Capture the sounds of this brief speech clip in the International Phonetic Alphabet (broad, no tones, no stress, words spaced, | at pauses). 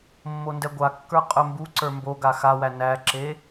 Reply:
mːondɛɡʷakːə˞ qʼɵmbuǀə˞ mboɡa xawæ næǁe